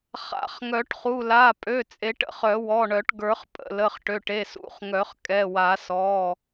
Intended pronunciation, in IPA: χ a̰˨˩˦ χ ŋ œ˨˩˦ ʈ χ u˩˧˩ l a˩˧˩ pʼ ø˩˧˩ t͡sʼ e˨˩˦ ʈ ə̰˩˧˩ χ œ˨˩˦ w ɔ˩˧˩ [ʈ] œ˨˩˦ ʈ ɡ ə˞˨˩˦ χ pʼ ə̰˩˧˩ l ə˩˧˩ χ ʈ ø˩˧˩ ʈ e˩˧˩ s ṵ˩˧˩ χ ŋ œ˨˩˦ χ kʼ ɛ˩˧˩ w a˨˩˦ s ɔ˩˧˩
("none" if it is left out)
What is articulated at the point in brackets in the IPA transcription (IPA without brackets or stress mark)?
ɳ